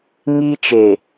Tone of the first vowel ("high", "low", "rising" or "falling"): high